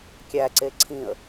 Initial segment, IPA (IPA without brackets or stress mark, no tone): kʲ